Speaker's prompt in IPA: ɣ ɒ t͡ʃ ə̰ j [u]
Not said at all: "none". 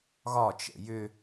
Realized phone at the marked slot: ʏ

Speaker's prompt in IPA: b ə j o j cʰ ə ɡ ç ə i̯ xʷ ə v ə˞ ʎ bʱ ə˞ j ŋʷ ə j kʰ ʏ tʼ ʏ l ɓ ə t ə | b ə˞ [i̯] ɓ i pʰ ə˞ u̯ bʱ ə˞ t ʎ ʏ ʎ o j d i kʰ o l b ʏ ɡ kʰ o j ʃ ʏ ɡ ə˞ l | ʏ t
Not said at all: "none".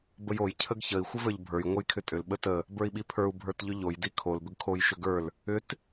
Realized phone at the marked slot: i̯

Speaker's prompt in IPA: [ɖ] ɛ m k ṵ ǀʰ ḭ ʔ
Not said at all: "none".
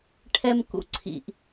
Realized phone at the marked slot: ʈʰ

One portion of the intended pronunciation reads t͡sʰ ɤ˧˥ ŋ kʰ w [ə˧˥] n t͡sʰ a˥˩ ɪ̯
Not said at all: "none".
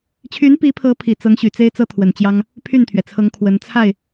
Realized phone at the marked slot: ə˧˥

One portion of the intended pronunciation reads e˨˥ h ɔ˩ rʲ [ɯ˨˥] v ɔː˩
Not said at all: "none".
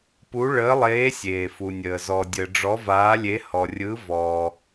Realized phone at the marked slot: ɯ˨˥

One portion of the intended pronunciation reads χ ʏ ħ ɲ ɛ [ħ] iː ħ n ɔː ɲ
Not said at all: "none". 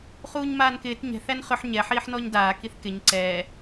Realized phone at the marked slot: ħ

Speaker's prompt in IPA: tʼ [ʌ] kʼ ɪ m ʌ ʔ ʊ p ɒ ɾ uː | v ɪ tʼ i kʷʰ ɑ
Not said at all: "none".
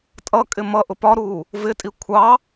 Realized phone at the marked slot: ʌ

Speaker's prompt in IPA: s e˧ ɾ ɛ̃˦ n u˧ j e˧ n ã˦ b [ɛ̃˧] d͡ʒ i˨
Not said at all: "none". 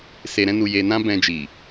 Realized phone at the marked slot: ɛ̃˧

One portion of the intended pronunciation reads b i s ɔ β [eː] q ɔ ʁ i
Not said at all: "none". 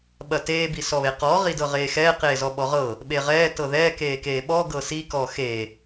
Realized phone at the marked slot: e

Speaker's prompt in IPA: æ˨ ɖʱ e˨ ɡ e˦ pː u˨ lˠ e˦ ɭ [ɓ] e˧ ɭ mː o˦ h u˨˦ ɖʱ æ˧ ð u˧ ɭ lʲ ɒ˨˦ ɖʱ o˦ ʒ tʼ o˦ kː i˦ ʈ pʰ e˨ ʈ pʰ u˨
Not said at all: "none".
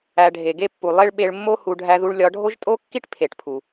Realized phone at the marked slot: ɓ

